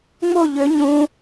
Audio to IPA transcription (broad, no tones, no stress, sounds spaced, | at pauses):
ŋ͡m o ʎ ø ɲ ũ